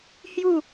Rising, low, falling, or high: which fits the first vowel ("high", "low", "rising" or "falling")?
falling